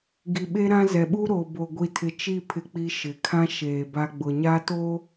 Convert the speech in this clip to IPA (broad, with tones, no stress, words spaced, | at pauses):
ɡi˨ɓe˦ɾã˦zɛ˨ ɓu˦ɾo˨bo˨ ɡʷi˨tʰɪ˨t͡ʃi˦˨ pʰɪ˦k͡pi˦ʃɪ˨ kʰã˦ ʃeː˨ba˦ɡ͡bʊ˨ ɲa˦to˦